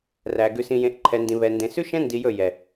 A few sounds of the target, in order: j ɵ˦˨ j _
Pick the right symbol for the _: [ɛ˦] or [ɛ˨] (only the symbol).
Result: ɛ˨